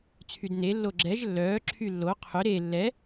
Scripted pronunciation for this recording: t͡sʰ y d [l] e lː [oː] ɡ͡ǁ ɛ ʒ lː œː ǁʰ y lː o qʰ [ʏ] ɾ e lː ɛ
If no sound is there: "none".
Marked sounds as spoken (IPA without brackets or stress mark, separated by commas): n, o, ʏ